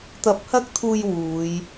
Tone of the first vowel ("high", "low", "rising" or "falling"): rising